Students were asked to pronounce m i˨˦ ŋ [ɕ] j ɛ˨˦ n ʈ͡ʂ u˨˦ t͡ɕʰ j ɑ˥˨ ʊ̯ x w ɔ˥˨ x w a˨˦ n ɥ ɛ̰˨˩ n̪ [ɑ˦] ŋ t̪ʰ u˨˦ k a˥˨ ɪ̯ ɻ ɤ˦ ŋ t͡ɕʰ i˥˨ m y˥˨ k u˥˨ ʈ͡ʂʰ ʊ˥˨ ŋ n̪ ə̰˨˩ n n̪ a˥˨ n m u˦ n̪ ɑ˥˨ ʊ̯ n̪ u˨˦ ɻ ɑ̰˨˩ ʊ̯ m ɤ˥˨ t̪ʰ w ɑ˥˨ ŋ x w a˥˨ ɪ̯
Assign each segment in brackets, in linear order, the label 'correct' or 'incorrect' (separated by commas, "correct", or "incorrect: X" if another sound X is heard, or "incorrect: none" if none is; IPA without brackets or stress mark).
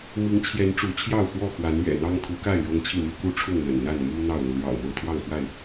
incorrect: t͡ɕʰ, correct